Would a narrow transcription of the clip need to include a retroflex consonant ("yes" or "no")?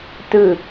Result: no